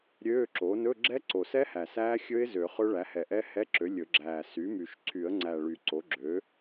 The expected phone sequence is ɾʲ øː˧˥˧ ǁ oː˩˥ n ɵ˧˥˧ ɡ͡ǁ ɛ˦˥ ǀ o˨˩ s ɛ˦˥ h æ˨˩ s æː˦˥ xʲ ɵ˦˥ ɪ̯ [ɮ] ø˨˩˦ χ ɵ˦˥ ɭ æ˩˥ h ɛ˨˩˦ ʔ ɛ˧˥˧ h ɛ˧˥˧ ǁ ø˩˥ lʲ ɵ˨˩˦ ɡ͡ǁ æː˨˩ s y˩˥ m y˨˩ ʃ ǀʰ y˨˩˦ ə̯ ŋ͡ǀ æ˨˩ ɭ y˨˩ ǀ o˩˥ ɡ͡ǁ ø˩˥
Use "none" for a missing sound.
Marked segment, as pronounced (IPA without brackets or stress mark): z